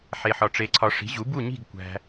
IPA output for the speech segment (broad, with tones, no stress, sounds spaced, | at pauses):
ħ e˦ ħ ɒ˦ ʈ͡ʂ e˦ ǀʰ ɒ˦ ʂ i̤˨˥ ʑ u˨˥ b u˥˨ ɲ i̤˥˨ ɡ kʷ æ̤˦